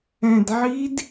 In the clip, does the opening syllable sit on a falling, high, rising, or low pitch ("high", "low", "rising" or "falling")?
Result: low